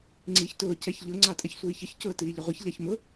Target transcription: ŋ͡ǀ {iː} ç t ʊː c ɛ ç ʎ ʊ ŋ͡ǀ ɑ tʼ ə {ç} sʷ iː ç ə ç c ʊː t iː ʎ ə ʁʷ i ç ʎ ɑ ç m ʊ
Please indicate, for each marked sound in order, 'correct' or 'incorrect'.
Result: correct, correct

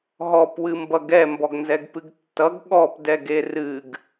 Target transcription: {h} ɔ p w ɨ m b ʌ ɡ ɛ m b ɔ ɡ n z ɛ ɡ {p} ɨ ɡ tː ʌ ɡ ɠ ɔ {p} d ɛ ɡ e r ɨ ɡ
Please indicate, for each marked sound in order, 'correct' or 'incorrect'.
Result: incorrect: ɦ, correct, correct

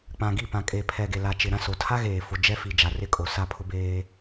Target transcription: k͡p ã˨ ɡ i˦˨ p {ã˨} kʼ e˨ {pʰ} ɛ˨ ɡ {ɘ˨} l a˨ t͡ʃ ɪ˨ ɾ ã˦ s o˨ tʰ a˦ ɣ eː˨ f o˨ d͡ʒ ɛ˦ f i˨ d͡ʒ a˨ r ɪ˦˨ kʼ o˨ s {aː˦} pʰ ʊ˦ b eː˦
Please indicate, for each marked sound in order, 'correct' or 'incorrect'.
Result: correct, correct, incorrect: e˨, incorrect: a˦

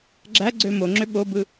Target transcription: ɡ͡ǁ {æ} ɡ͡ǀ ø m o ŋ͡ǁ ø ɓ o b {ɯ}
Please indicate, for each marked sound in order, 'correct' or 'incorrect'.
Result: correct, correct

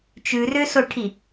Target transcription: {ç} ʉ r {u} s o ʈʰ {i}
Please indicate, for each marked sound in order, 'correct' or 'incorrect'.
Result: incorrect: t͡ʃ, incorrect: ø, correct

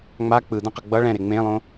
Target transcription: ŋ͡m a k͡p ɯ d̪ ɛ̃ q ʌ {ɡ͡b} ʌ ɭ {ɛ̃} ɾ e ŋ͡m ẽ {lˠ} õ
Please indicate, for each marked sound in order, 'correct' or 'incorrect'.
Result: correct, correct, correct

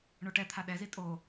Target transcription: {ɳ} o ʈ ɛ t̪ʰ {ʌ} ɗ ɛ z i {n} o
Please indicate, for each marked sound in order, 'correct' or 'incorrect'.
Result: correct, incorrect: a, incorrect: tʼ

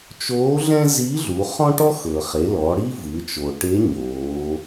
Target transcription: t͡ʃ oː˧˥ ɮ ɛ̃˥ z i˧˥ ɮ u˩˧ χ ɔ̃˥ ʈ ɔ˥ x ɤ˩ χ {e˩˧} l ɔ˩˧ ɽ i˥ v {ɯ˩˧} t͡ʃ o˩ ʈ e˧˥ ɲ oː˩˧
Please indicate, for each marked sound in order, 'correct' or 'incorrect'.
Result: correct, correct

